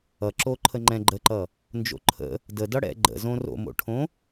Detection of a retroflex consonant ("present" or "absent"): present